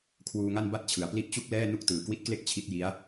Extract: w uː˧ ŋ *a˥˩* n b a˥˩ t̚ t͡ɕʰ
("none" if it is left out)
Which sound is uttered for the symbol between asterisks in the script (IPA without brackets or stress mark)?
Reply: a˥˩